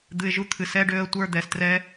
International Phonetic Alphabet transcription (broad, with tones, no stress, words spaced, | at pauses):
d̪ɨ˧ɪ̯ʒu˦t̪ʰɨ˨ sɛ˦ɖø˧ə̯tʷə˞˧ d̪ɛ˨strɛ˦